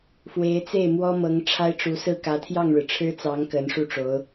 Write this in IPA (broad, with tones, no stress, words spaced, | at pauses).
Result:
fwe˧˥ɪ̯t͡se˥˩ɪ̯ mwɔ˥ mɤ˧˥ŋ ʈ͡ʂʰa˥ɪ̯ʈ͡ʂu˧˥sɹ̩˥˩ kä˧˥t̪ʰjɑ˥˩ŋɻɻ̩˩ ʈ͡ʂʰɻ̩˥t͡sɑ˧˥ŋ kə˧˥nʂu˥˩ʈ͡ʂo˧˥ʊ̯